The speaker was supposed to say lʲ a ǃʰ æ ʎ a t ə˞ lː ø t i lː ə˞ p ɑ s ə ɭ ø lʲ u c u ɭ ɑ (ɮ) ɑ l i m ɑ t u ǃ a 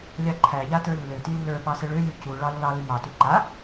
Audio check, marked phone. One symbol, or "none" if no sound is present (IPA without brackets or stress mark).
lː